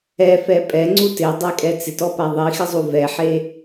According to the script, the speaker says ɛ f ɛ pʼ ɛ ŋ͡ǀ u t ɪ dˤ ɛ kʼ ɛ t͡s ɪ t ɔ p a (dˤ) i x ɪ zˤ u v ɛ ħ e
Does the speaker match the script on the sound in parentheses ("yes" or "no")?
no